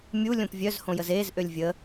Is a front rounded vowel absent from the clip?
no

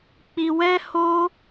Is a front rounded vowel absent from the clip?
yes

